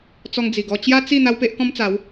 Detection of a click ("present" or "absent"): absent